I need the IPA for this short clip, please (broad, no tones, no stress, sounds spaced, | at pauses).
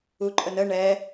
u ǃʼ ə n ə ɳ ɛ